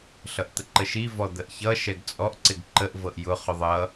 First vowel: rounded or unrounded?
unrounded